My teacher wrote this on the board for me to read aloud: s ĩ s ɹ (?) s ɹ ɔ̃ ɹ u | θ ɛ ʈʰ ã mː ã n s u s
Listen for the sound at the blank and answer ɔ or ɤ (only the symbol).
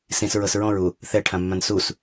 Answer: ɤ